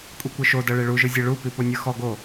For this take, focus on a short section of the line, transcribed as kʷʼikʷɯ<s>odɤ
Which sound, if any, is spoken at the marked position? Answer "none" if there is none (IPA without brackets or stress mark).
ʃ